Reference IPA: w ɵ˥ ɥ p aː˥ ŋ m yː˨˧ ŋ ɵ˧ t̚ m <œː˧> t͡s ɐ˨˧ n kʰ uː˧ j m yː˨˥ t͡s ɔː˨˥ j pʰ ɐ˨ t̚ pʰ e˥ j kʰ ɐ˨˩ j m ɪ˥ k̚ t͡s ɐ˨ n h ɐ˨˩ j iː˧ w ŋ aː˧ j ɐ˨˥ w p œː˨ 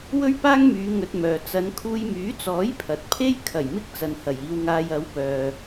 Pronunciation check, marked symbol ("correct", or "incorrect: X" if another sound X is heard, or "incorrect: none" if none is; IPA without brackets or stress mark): incorrect: œː˨